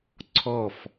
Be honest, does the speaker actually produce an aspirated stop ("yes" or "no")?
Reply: yes